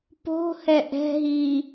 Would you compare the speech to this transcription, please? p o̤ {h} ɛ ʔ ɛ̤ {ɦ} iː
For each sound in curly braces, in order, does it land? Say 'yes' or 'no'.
yes, yes

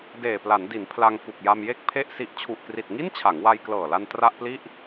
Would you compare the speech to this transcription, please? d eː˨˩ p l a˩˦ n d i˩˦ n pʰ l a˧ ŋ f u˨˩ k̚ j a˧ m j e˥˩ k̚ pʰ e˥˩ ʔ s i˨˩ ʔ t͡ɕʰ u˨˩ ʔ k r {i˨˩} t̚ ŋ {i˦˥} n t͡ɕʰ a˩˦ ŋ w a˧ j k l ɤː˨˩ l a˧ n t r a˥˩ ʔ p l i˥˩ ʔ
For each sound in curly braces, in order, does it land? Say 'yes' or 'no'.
yes, no

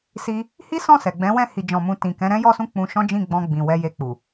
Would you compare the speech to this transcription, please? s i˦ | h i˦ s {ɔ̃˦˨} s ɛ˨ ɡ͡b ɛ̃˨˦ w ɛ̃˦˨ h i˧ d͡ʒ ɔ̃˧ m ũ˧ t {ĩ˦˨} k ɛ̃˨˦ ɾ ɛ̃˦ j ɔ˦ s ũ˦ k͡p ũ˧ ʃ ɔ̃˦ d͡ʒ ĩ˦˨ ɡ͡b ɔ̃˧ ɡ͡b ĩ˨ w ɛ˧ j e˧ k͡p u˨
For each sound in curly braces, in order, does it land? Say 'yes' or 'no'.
yes, no

